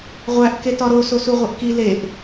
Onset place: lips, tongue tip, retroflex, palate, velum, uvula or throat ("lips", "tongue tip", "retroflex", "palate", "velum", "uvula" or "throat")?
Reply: uvula